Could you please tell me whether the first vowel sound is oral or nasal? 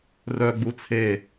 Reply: oral